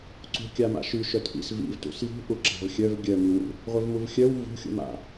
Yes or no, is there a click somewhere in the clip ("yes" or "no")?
yes